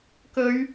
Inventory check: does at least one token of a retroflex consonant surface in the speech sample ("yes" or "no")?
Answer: no